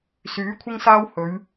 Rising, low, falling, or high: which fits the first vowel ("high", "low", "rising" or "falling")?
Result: rising